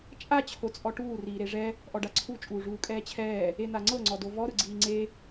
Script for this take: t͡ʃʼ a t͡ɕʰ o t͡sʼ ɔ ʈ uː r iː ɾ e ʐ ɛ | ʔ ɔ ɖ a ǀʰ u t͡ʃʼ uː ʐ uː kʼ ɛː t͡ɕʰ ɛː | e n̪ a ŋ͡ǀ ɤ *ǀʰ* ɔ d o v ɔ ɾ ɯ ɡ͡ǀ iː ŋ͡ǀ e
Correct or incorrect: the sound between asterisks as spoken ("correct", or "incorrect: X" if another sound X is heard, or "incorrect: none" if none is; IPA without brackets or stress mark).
incorrect: ŋ͡ǀ